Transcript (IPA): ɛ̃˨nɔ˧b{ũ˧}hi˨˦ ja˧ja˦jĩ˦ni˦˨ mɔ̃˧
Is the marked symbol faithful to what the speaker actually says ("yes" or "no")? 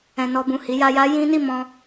no